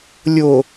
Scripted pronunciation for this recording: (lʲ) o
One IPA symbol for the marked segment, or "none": lʲ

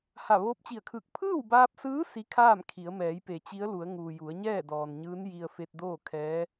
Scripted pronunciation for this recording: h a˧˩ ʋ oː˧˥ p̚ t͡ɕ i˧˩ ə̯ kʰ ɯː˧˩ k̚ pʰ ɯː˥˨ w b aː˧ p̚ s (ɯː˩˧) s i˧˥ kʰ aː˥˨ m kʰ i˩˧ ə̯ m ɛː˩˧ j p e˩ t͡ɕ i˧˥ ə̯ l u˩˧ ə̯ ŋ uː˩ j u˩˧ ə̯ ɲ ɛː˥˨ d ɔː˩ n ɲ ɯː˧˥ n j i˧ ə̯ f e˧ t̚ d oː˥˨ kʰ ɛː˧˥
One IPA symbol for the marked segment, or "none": ɯː˧˥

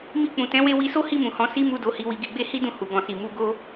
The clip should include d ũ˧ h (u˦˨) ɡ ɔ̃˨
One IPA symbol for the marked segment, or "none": u˨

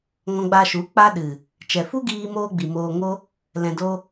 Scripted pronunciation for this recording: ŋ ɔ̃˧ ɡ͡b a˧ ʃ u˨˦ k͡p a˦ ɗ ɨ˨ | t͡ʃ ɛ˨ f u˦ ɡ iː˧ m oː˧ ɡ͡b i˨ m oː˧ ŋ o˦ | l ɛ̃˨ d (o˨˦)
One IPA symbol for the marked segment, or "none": o˧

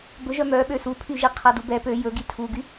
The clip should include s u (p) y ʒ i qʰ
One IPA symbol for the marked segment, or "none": pʰ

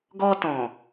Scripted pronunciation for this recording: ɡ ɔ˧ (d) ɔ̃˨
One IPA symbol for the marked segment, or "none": t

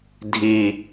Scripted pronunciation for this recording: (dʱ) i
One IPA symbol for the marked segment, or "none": dʱ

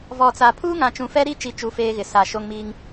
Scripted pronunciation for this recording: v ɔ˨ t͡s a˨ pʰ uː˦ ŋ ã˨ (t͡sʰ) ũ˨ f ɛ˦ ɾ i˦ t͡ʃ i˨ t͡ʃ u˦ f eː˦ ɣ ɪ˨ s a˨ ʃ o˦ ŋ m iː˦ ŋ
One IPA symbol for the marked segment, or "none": t͡ʃ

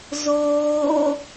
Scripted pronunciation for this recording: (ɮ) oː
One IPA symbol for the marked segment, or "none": z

